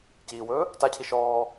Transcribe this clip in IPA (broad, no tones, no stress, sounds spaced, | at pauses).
c iː w ɵː | t a cʰ i ʃ ɔː